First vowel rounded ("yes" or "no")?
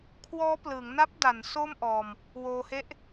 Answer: yes